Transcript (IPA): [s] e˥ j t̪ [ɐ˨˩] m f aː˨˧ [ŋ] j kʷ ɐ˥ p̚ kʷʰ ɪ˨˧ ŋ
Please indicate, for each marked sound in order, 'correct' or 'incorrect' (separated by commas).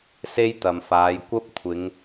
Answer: correct, incorrect, incorrect